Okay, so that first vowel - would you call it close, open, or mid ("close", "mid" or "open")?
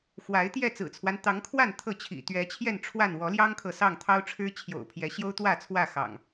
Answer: open